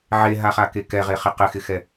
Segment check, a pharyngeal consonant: present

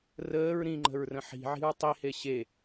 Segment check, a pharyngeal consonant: present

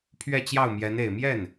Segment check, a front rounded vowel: absent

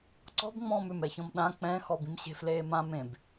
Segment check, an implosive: present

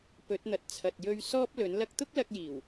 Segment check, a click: absent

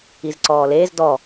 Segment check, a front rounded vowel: absent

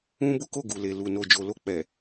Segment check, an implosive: absent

